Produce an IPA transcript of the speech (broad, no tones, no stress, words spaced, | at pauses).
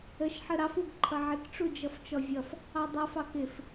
əʃħə ɾɑfuɡ ǃʰʌʕɪkʈ͡ʂud͡ʒʌf t͡ʃɔvʲʌf | ɑdˤʌfɑk ɪf